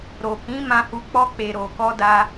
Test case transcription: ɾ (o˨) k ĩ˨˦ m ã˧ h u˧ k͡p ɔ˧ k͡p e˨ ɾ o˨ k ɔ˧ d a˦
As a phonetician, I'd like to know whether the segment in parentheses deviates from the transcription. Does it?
no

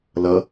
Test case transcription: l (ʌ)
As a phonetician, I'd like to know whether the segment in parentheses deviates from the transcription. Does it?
no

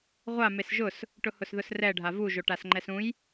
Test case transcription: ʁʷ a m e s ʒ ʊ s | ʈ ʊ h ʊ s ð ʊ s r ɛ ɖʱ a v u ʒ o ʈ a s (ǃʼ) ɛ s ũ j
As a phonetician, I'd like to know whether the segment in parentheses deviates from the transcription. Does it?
yes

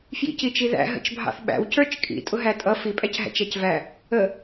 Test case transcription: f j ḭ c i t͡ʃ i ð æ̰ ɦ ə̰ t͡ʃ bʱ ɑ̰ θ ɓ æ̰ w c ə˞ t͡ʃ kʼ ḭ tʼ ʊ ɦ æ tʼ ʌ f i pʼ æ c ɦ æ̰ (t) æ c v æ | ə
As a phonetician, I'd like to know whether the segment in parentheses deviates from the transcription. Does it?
yes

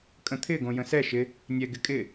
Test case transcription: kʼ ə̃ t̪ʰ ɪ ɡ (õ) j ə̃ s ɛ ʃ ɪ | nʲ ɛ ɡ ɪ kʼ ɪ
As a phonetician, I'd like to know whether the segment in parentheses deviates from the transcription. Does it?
no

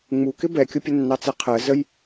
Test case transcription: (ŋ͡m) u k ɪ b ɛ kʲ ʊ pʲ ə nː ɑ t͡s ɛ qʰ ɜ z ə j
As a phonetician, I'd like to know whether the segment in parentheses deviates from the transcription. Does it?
no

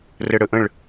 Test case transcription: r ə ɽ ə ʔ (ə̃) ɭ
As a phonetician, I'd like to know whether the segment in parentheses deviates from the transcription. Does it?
no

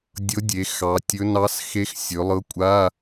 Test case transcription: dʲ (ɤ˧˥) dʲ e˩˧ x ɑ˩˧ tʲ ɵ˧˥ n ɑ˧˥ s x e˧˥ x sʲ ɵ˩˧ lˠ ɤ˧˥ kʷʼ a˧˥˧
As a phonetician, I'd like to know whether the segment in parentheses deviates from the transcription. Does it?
no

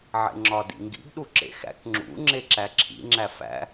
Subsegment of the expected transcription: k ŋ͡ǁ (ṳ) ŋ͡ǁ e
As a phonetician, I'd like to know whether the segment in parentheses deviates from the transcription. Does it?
yes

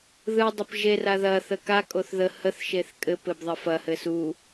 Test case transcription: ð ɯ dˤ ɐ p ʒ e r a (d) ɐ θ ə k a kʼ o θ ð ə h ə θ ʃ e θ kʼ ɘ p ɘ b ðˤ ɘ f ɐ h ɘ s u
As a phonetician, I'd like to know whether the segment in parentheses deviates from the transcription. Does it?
yes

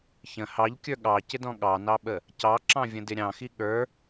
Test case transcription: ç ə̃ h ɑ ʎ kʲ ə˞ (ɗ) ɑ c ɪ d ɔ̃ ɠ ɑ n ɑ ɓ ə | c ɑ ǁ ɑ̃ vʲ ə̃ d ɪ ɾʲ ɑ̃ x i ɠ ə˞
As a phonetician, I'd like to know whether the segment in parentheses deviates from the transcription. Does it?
yes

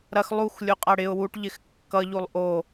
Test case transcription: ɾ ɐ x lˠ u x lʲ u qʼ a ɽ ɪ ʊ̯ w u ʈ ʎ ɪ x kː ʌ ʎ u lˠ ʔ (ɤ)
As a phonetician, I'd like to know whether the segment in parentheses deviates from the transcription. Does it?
yes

